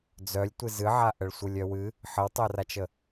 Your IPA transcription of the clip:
d͡z œ lʲ tʷ ɨ z ɨ ʕ a ʔ ə ɭ sʷ ɯ lʲ œ w ɨ | ħ ə w tˤ œ r a t͡ʃ ə

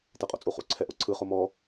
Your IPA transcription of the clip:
t ɛ qʼ o̰ t͡sʼ u χ ṵ ǀʰ ɛ ʔ o ǀʰ ɯ χ o m ɔ

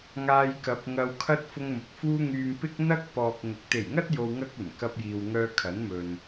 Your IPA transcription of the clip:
ŋ aː˧ j k ɐ˨˥ p̚ ŋ ɐ˧ w kʰ ɐ˥ t̚ f ʊ˧ ŋ m ʊ˨ k̚ f uː˧ ŋ yː˨ m p ɪ˥ k̚ n̪ ɐ˥ k̚ p ɔː˨ k̚ ŋ ʊ˨˥ k̚ t̪ e˨˩ j ŋ ɐ˥ t̚ j o˨ w ŋ ɐ˧ k̚ ɵ˨˩ n k ɐ˧ p̚ j iː˨ w ŋ œː˧ kʰ ɐ˨˥ n m ɵ˨ n

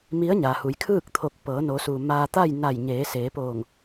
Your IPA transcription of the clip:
m i˧˥ ə̯ ɲ a˩ h u˩˧ j kʰ ɯː˥˨ k̚ t̪ʰ o˧˩ k̚ p ɤː˩˧ n o˩˧ s uː˩ m aː˧ t̪ a˥˨ j n a˧˩ j ɲ eː˩˧ s eː˩˧ p oː˧˩ ŋ

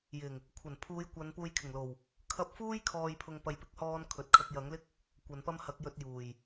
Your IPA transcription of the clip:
j ɪ˨˩ ŋ | kʷʰ ɐ˨˩ n pʰ uː˨˧ j kʷ ɐ˨˧ n p uː˧ j kʰ ɪ˨˩ ŋ l o˨˩ w | kʰ ɐ˧ p̚ f uː˥ j kʰ ɔː˧ j pʰ ʊ˧ ŋ p ɐ˧ j p ɪ˥ k̚ h ɔː˥ n kʰ ɵ˨ t̚ kʰ ɐ˧ k̚ j ɐ˨˥ ŋ l ɪ˥ k̚ | kʷ ɐ˨˧ n p ɐ˥ m h ɐ˨˥ k̚ j ɵ˧ t̚ j uː˨˩ j

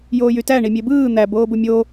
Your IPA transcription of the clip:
j oː j y t æ ɳ i mʲ e b ɯː n̪ æ b oː b u mʲ o

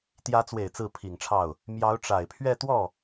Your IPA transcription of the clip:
t̪ j ä˧˥ t͡s w e˨˩ ɪ̯ t͡s ɹ̩˥˩ pʰ i˨˩ ŋ ʈ͡ʂʰ ɑ˥˩ ʊ̯ | m j ɑ˧˥ ʊ̯ ʈ͡ʂ a˨˩ ɪ̯ pʰ ɥ ɛ˥˧ t̪ w ɔ˥˩

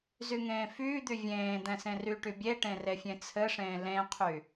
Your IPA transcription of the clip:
z y ŋ ẽː f yː d̪ y vʲ ẽː d̪ ɛ̃ s ẽ r y ʈ y bʲ e ʈ ẽ r e fʲ ẽ t͡sʰ ɘ ʂ ẽː l ẽ qʰ y

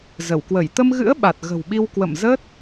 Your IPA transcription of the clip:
z ə˧˩ w k w ə˧˩ j t̪ ə˧ m ɣ ɨ̰˧˥ ə̯ ɓ a˨˩ t̚ ɣ ə̤˨˩ w ɓ i˧ w k w ə̰˧˨ m z ə˦˥ t̚

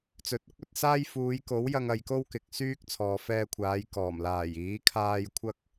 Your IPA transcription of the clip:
t͡s ɵ˨ t̚ ʊ˥ k̚ ɵ˧ t̚ s aː˥ j f uː˨˧ j k o˨˥ w j ɐ˧ ŋ ɐ˧ j k o˥ w k ɪ˨ k̚ s yː˥ k̚ t͡sʰ ɔː˨ f ɛː˧ kʷʰ aː˨˧ j k ɔː˨˩ m l aː˨˩ j iː˨˥ kʰ aː˥ j kʷʰ ɐ˥ k̚

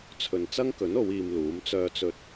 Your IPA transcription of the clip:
t͡sʰ ɵ˨ n t͡s ɐ˥ ŋ k ɵ˨˥ n o˨˧ w iː˧ m l uː˨˥ m t͡s œː˧ t͡s ɵ˧ t̚

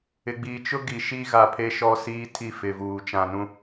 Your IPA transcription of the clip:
ɪ˨ ɡ͡b iː˨ t͡ʃ ʊ˦ ɡ i˨ ʃ i˦ ɣ a˨ pʰ e˦ ʃ ɔ˦ s iː˦ tʰ i˦˨ f ɪ˨ v uː˨ t͡ʃ ã˨ n ũ˦

